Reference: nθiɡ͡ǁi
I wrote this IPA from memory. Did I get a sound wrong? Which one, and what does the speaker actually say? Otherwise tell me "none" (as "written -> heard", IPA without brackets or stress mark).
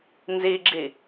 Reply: θ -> z